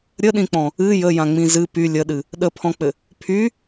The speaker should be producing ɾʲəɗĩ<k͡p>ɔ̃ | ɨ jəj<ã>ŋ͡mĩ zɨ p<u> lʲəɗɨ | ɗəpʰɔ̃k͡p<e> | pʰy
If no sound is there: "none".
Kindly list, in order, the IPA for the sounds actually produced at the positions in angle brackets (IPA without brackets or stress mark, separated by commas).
k͡p, ã, y, ɘ